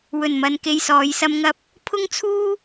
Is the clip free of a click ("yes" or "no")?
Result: yes